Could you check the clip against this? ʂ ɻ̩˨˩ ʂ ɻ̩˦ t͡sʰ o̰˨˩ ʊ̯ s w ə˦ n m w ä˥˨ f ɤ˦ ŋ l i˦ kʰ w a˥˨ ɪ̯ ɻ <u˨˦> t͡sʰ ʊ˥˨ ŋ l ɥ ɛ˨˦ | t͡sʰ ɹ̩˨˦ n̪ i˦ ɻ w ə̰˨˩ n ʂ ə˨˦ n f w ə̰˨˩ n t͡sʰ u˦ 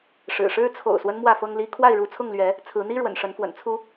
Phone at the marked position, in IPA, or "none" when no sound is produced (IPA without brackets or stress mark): u˨˦